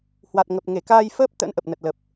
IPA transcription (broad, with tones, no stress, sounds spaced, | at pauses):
h w a˨˩ t̚ ŋ ə˨˩ p̚ ŋ e˧˩ k aː˧ j f əː˦˥ p̚ t̪ ə̰˧˥ n ʔ ə˨˩ p̚ n ə˨˩ t̚ l ə˨˩ p̚